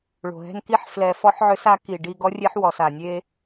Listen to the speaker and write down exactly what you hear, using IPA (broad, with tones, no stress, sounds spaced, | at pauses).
ɭ o̤˨ ɦ ɛ̤˦ n k i˦ ħ f l ɛ˧ f ɔ˦ ħ ʕ ø˦ s a˦ k i˨ ɖ i˧ ɡ ɔ˦ rʲ e˦ ħ w ɔ˨ s a˨ nʲ e˦